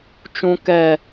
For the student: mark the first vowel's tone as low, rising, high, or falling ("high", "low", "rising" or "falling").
high